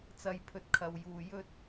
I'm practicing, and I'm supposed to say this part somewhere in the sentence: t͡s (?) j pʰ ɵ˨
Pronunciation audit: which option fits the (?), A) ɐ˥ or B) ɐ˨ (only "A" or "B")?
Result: B